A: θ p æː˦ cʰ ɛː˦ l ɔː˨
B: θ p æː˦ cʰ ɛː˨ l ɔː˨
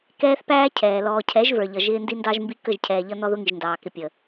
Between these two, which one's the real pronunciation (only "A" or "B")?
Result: B